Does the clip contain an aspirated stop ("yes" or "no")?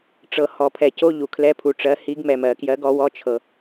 yes